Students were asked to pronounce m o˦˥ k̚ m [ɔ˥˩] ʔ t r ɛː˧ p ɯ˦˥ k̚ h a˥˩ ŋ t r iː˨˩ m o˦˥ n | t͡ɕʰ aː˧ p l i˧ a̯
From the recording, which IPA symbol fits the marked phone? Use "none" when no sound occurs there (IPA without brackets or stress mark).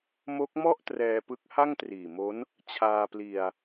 ɔ˥˩